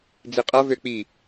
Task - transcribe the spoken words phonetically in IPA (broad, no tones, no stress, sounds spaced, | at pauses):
d͡z i qʼ ʌ v ø k͡p i